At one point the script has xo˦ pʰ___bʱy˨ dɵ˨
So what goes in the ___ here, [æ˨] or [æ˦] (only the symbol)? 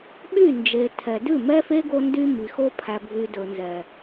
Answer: æ˨